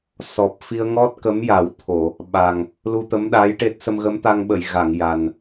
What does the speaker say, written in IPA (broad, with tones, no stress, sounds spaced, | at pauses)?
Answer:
s ɔ˨˩ p̚ f i˧ ə̯ ŋ ɔ˦˥ t̚ k ə˧˥ m j a˨˩˦ w t̪ʰ o˨˩˨ | ɓ a˨˩ ŋ | l u˧ t̪ ə˧˥ m ɗ aː˧˥ j ʈ e˦˥ t̚ s ə˧ m ɣ ə˧˥ m t̪ a˧ ŋ ɓ ə˨˩˨ j ɣ a˨˩˨ ŋ j a˨˩ n